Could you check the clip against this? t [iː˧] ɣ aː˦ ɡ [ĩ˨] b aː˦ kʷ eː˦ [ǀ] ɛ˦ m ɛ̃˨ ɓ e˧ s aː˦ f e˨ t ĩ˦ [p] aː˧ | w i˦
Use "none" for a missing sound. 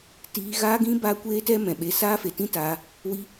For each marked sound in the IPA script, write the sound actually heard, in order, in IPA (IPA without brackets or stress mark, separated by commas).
iː˧, ĩ˦, t, t